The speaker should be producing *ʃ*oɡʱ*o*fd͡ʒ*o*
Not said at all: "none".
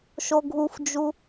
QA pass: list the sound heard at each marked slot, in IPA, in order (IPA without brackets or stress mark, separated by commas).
ʃ, u, u